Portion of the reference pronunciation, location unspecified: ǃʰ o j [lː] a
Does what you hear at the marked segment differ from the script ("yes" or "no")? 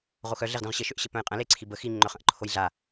yes